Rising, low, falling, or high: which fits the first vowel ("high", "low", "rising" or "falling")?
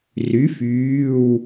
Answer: rising